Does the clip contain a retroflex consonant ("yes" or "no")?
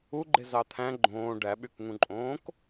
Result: yes